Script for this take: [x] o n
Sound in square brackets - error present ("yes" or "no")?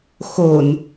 no